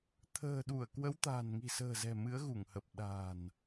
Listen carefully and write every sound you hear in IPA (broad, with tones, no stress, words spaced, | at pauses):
t̪ʰə̤ː˨˩ɗu˧˩ə̯kwə˨˦w t̪a̤ː˨˩nŋi̤˨˩sə̤ː˨˩zɛ̤˨˩ mɨ˨˦ə̯ɣu˧˩ŋhə˨˩p̚ ɗa̤˨˩n